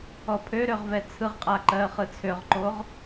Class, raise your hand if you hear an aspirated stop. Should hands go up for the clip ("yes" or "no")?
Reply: yes